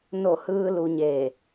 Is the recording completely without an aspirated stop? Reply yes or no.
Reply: yes